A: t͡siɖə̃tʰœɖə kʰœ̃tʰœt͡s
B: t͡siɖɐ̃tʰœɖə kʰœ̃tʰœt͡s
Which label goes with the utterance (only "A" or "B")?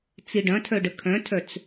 B